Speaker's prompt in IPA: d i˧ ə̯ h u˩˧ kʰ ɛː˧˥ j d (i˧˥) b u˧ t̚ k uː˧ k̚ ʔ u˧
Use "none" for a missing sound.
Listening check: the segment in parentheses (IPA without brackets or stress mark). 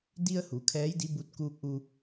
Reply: i˧˥